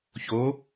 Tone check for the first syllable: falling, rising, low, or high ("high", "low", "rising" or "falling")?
rising